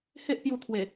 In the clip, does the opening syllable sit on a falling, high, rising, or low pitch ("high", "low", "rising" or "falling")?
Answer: high